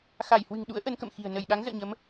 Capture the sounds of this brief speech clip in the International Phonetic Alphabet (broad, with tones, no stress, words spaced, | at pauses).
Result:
xa˧˩jhwɨ̤˨˩ŋ ɗṵ˧˥ə̯ ʔə˨˦nkə̰˧˨mxi̤˨˩ə̯ nə˧˩jɗa˨˦ŋzə̰ː˧˨ ɲə˨˦m